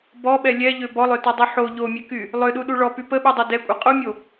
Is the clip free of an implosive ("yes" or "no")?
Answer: no